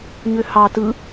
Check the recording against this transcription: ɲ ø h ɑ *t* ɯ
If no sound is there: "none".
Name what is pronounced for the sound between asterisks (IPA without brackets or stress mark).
t